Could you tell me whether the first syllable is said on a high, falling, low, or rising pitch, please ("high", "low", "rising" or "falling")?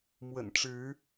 low